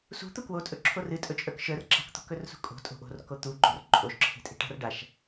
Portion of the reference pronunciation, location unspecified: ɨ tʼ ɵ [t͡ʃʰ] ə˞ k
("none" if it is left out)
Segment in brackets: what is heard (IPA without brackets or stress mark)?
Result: t͡ʃʼ